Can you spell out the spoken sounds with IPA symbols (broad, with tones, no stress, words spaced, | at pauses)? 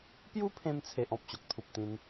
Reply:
pju˦pʰẽ˧mt͡sʰe˨ʔ ɔ̃˨p̚ɕo˨k̚t̪ʰu˨p̚t̪ĩ˧n